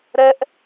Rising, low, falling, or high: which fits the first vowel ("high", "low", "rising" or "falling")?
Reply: high